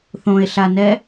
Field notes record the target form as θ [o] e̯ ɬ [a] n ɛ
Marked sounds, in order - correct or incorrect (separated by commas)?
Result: incorrect, correct